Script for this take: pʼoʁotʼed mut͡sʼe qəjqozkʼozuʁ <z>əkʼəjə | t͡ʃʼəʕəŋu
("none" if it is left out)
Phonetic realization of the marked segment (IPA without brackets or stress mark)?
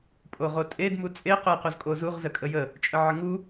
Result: z